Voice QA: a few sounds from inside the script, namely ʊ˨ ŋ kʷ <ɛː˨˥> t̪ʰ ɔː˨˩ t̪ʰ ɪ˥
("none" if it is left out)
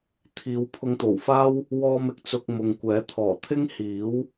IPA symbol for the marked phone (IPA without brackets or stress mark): ɛː˨˥